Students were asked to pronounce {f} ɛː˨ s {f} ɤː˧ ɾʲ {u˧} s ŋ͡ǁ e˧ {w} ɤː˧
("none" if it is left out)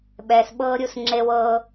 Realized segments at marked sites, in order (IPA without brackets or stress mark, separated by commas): ɓ, ɓ, u˧, w